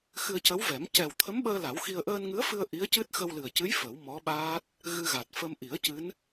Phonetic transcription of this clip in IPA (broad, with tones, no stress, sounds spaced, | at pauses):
x ɨ˧ ə̯ c ə˧˥ w v ɛ˨˩˦ m c ɛ˨˩ w t̪ʰ ə˧˥ m ɓ əː˧ l a˨˩˦ w x i˧ ə̯ ʔ əː˧ n ŋ ɨ˧˥ ə̯ f ɨ˧ ə̯ ʔ i˧˥ ə̯ c ɨ˦˥ t̚ x ə˧ w l ɨ˨˩ ə̯ c ɨ˧˥ j f ə˨˩˦ w m ɔ˧˥ ɓ aː˦˥ t̚ | ɣ ɨ˧ ɣ a˨˩ t̚ f ə˧ m ʔ i˨˩˦ ə̯ c ɨ˧˥ n